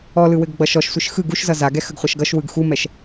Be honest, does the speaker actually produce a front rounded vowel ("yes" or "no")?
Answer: no